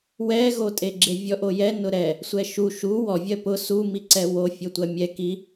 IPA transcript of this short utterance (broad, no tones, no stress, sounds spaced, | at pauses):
w ɛ ɣ o tʼ e ɡ͡ǁ e vʲ ɔ ʔ o j ɛ n ʊ ɾ ɛ | sʷ ɛ ʃ u ʃ u w ɔ vʲ ɜ p ʊ s u m i ǀ ɛ w o fʲ o tʷ ɜ mʲ ɛ k i